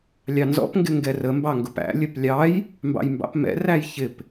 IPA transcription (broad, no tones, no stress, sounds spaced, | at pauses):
lʲ ɑ n z ɔ̰ p ŋ ɡ ɪ ŋ ɡ ɛ r ə m b ɑ ŋ ɡ ʊ p æ̰ lʲ ə p lʲ ɑ j | m b ɑ̰ j m b ɑ̰ p m ɛ̰ r æ j ç ɪ p